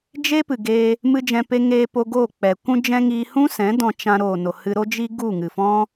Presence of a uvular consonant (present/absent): absent